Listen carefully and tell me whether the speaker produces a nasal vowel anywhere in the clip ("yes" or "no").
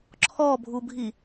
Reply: no